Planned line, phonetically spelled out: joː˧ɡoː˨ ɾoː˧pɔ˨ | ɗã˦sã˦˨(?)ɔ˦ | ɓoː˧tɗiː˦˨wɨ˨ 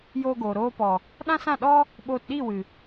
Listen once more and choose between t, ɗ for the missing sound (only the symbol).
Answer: ɗ